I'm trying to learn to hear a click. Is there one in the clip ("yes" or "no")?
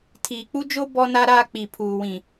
no